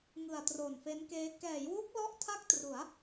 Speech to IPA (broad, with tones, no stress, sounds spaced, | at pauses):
ŋ ɯ˨˩ a̯ t r o˨˩ n f e˦˥ n k eː˦˥ k ɛː˩˦ j w u˦˥ k̚ l ɔ˦˥ ʔ tʰ a˥˩ k̚ t r u˩˦ a̯